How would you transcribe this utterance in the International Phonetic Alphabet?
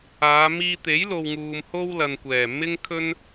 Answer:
aː˨˧ miː˧t̪e˨˥jlo˨wŋuː˨m ho˥w lɐ˨nkʷɛː˨˩ mɪ˥ŋkʰɵ˥n

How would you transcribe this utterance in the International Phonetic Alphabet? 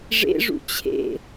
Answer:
ʐḛʐṵ t͡ɕʰḛ

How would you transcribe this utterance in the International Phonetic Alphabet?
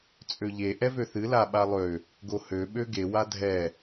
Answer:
t͡sʼøʎe ʔɛvøθɨ laɓalˠø | ɡohø ɓøɡe wadʱɛ

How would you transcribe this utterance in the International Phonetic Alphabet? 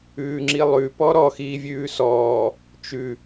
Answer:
ʉːŋ͡ǁilˠʉ pɔɾɔ xiːvʲʉːsɔː | t͡ʃʉ

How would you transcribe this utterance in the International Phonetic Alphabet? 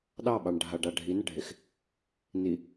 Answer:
ɗɑɓɑɳ ɖʱaɖa ɖʱinəɖʱex | ni

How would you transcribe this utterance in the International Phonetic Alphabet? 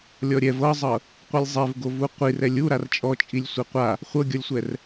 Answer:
lʲɔɾʲɛv ɤzˤɤ | qʷɯlʲzˤevɡovu qʷir ɛlʲu ɾart͡ʃʼɔt͡ʃʼilʲ sʷeqʷa | χʷɤɡʲɔlʲsʷɛr

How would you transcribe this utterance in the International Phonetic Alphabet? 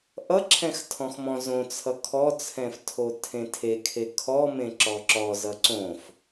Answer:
ʔʌǁʰɛ̃x tʰɔ̃xmɔ̃zõ t͡sʰʌkʰɔt͡sʰɛ̃f tʰotʰẽtʰekʰe kʰɔmẽ ǁɔǁɔ zʌǀõf

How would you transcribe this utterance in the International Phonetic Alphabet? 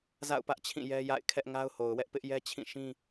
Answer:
za̰˦˨ʊ̯pä˦ʔt͡ɕʰĩ˦˨ jɛ˦ja̰˦˨ɪ̯ kʰɛ˦ʔŋa˦ʊ̯ho˨ʊ̯wɛ˦ʔ pɪ˦ʔjɛ˦t͡ɕʰĩ˦˨ʃĩ˦

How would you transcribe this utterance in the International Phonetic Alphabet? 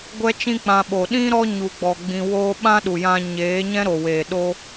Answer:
ɡʷɛ˦t͡ʃĩ˦k͡pã˧ ɓo˨ɗĩ˦ɾɔ˦ ɲu˧ɡ͡bɔ˧ ɡ͡bĩ˧woː˦ ɓã˦ɗu˨jã˧ ɲeː˨˦ɲɛ̃˦ɾo˨weː˨ ɗo˦

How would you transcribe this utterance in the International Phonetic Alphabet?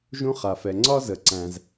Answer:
ʒũ˦χa˩fɛ˩ ŋ͡ǀɒ˦zə˩ ǀæ̃˩z

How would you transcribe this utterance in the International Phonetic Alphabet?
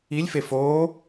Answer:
ilʲfef o

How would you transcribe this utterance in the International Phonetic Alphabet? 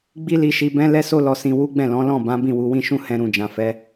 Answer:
ɡ͡bi˦li˧ʃi˧ bɛ̃˦ lɛ˦so˦ lɔ˧sĩ˧wu˦ɡ͡bɛ̃˦˨ lɔ̃˨˦lɔ̃˦˨ bã˨˦ bĩ˦˨wu˨˦wĩ˦ʃũ˦˨ hɛ̃˧ɾũ˨ d͡ʒã˨fɛ˨˦

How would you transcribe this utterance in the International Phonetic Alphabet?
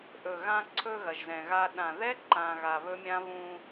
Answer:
ʔɵ˨ɣã˧ǀʰɵ˧ ɣɐ˨ʒzɛ̃˨ɣa˧ ɗã˨ðɛ˦ ǃã˧ɣa˧βɵ˦mʲã˦ βũ˧

